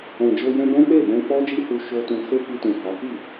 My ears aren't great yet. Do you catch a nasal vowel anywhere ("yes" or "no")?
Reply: yes